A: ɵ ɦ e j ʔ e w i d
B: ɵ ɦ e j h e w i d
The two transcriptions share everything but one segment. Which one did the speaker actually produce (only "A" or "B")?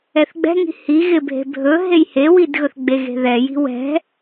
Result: B